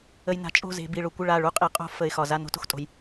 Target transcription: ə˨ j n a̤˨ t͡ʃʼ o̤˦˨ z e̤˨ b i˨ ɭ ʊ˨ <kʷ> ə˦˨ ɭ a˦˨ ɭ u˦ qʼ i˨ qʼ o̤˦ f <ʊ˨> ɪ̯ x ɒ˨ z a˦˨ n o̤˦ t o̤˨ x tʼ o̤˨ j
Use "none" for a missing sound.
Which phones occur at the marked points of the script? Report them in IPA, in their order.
kʷ, ə˨

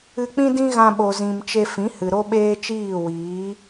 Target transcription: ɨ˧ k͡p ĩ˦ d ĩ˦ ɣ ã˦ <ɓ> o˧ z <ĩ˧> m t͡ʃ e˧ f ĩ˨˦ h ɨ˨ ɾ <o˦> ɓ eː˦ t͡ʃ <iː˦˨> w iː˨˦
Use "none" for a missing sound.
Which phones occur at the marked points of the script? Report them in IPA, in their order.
ɓ, ĩ˧, o˦, iː˦˨

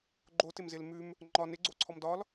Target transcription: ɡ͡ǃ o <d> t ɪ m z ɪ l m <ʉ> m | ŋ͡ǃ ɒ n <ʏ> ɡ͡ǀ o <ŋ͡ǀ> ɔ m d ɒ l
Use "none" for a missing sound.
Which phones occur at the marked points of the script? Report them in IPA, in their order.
none, ʉ, ɪ, ǀʰ

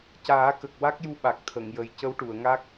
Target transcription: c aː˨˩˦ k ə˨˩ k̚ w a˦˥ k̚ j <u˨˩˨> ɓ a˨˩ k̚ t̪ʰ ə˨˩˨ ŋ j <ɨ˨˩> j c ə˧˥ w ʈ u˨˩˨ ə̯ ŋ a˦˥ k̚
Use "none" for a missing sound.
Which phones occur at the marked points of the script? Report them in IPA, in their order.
u˧˥, ə˨˩

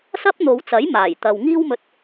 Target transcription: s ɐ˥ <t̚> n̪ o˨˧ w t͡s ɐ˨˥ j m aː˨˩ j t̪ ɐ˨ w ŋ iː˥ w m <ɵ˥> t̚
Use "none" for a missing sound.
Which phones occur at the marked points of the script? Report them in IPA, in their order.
p̚, ɵ˧

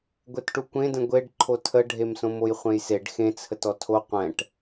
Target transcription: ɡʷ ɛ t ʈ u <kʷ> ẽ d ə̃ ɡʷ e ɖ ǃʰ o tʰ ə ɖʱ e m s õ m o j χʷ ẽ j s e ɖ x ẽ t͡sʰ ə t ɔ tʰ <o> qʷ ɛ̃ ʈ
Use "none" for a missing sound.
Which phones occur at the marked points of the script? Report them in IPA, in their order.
kʷ, o

